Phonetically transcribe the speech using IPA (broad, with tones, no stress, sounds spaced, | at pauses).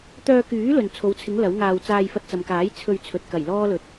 t̪ œː˧ k yː˨˥ l ɵ˨ n t͡sʰ o˨˧ w t͡sʰ ɪ˨˥ ŋ l ɐ˨˥ w ŋ aː˧ w t͡s aː˧ j f ɐ˧ t̚ t͡s ɐ˨ m k aː˨˥ j t͡sʰ ɵ˧ ɥ t͡sʰ ɵ˨ t̚ k ɐ˨˩ j l ɔː˥ l ɵ˨˥ t̚